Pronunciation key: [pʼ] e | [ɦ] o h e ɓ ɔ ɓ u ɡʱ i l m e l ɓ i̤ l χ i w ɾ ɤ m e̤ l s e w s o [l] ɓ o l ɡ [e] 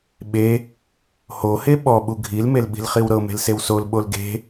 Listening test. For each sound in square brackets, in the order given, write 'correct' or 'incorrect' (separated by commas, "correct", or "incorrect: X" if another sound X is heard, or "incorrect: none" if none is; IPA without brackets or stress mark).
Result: incorrect: ɓ, incorrect: h, correct, incorrect: e̤